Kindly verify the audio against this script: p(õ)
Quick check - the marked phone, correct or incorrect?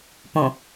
correct